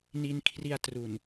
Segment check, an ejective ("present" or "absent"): absent